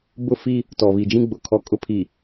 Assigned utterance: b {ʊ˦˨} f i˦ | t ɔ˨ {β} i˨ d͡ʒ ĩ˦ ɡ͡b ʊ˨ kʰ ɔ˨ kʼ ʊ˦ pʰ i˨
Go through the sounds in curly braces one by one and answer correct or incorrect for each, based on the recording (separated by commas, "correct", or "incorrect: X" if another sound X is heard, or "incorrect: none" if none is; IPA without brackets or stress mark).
correct, correct